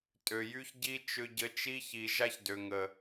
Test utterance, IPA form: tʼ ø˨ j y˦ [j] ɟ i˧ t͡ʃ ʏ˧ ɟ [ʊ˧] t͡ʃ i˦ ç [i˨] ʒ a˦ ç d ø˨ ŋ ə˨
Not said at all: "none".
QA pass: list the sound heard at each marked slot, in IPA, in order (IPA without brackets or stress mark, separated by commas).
ç, ə˧, i˨